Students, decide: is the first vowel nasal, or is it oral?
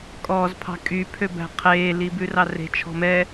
oral